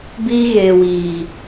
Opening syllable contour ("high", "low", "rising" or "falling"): high